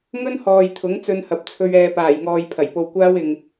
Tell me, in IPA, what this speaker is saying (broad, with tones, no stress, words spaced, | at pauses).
ŋɵ˥nhɔː˨j t̪ʰʊ˨˥ŋt͡sɵ˧nhɐ˨p̚t͡sʰɵ˧ɥ ɛː˨paː˨˩jŋɔː˨j pʰɐ˨˩jpo˧wkʷaː˥w ɪ˨ŋ